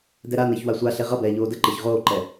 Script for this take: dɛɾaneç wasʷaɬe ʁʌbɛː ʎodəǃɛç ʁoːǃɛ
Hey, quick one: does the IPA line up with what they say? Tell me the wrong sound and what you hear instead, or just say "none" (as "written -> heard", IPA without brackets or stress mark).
o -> oː